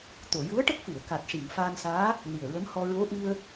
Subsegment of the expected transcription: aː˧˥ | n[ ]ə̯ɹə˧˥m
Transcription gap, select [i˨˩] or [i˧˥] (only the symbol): i˨˩